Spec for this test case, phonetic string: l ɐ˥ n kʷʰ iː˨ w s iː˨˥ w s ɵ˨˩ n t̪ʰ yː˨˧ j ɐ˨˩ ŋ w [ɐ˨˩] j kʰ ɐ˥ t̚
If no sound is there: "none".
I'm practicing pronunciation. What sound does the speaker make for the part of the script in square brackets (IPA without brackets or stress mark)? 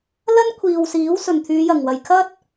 ɐ˨˩